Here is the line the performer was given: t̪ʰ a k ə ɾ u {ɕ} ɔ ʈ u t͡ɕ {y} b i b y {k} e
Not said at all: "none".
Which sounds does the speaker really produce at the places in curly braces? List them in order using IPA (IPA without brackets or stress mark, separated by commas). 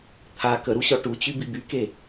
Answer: ɕ, y, k